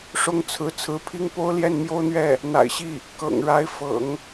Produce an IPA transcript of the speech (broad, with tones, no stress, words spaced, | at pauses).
ʂʊ˥ŋt͡sʰɹ̩˧˥ t͡sʰɹ̩˧˥pʰi˥ŋ po˥ʊ̯ljɛ˥˩nmjo˥ʊ̯n̪ɥɛ˥˩ | n̪a̰˨˩ɪ̯ɕi˥˩ | kɤ̰˨˩ŋɻa˧˥ɪ̯ fɤ̰˨˩˦ŋ